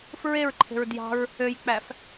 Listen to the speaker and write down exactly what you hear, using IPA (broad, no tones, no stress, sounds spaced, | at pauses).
f ɹ e ɹ ǃʰ e̤ ɹ d j ɑ̤ ɹ | ø j k͡p æ f